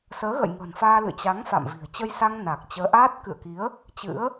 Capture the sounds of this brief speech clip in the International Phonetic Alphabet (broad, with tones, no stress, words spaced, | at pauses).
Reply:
səː˨˦ɣə̰˧˨jŋə̤ː˨˩nfaː˧ lɨ̰˧˨t͡ɕa˨˦ŋfa̰˧˨mvi̤˨˩ə̯ t͡ɕə˧jsa˧ŋ na˨˩k̚ t͡ɕəː˨˦ʔaː˦˥t̚ kɨ̰˧˨ə̯ki˨˦ə̯ | t͡ɕɨ̰˧˥ə̯